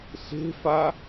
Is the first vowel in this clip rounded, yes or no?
no